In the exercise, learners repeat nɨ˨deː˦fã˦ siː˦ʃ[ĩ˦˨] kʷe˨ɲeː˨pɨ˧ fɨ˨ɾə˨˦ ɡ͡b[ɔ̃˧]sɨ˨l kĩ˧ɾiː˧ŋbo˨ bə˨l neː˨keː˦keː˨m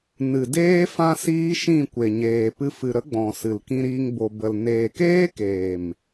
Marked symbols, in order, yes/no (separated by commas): yes, no